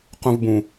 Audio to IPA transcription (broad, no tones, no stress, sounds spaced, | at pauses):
q ũ v b ũ